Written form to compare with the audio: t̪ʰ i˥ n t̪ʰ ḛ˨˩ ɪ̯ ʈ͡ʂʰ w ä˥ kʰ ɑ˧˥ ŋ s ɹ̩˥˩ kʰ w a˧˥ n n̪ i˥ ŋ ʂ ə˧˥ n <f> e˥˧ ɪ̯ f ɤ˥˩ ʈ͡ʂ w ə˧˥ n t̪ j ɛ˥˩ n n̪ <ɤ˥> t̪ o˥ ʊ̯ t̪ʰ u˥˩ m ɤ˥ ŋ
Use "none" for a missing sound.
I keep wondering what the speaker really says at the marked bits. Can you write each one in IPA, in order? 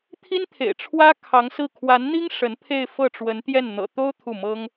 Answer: pʰ, ɤ̰˨˩

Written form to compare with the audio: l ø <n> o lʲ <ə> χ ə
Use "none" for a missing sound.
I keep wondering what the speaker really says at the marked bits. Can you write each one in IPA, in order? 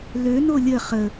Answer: n, ə

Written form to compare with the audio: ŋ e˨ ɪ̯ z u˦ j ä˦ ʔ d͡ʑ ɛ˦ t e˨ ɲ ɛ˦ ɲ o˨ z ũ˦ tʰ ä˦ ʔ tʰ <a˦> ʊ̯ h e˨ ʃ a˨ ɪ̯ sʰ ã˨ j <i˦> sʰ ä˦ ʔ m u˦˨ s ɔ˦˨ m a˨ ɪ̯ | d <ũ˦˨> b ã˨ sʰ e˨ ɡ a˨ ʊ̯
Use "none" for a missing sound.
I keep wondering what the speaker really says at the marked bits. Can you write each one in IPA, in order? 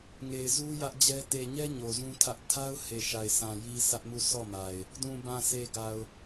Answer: a˦, i˦, ũ˨

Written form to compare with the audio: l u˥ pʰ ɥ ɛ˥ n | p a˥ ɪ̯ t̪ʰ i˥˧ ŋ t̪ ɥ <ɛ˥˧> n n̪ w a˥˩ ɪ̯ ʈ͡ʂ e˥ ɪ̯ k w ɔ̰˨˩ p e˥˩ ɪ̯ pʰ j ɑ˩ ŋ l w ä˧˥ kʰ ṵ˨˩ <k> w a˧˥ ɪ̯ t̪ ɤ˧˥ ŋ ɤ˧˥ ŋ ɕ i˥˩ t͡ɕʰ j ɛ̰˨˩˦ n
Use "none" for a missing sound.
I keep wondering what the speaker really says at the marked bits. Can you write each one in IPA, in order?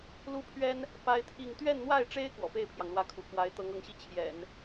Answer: ɛ˥˧, k

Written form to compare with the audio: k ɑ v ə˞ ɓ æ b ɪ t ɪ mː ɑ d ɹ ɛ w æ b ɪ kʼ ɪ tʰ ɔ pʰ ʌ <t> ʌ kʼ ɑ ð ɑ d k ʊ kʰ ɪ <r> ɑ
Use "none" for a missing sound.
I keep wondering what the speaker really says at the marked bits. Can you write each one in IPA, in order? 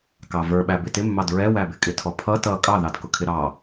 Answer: t, ɾ

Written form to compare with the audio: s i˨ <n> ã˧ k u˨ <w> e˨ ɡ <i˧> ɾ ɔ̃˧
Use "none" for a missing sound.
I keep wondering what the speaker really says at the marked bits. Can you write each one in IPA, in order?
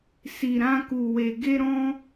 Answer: ɾ, w, e˧

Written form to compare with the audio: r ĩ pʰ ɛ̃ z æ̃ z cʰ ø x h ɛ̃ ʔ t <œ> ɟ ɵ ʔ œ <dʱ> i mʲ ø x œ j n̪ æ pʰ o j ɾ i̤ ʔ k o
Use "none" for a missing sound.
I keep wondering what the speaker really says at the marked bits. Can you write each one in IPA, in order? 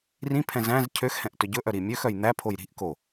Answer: ɵ, ɾ

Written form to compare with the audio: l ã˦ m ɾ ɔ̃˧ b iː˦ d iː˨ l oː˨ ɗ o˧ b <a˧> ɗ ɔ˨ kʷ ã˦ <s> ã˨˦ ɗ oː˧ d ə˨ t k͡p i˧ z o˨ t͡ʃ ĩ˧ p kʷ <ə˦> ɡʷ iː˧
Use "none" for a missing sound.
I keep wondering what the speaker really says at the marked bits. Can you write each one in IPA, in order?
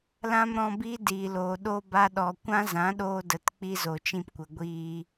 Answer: a˧, z, ə˨

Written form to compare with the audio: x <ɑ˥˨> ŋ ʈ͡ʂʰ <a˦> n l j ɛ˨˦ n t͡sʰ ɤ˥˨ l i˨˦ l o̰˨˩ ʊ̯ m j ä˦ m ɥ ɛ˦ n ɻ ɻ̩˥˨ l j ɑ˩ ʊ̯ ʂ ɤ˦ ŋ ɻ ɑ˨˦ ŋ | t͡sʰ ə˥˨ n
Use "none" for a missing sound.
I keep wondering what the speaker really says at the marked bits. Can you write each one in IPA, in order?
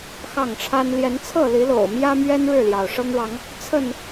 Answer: ɑ˥˨, a˦

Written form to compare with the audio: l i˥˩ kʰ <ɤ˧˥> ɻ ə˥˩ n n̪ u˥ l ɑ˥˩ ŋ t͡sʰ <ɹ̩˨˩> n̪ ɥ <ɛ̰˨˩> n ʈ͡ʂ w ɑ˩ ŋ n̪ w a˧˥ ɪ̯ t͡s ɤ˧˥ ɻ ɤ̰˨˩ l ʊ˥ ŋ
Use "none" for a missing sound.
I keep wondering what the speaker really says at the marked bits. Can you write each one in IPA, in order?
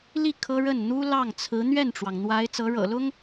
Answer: ɤ˥, ɹ̩˧˥, ɛ˥˩

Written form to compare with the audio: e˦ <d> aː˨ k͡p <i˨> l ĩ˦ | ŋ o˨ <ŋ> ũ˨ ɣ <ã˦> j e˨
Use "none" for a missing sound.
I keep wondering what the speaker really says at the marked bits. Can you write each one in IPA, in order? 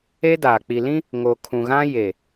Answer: d, i˨, kʰ, ã˦

